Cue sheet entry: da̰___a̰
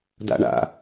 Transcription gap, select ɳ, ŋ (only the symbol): ɳ